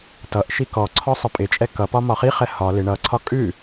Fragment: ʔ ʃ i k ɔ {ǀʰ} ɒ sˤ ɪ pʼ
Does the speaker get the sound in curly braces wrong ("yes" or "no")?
no